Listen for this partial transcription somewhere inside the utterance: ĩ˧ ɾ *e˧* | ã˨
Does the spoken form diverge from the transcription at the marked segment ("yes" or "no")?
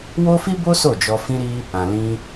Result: yes